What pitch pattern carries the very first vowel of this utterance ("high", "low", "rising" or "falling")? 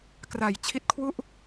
low